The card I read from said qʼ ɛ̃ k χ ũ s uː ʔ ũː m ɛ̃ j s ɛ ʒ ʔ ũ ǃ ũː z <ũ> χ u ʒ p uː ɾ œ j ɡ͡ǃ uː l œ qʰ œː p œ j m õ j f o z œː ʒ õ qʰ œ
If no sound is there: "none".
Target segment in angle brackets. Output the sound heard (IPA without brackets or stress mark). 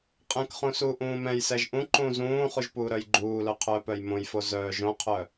ũː